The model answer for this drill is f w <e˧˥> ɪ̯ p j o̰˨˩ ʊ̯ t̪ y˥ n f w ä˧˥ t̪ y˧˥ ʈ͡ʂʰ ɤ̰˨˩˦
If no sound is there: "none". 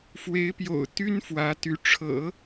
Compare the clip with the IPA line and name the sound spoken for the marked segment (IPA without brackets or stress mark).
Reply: e˧˥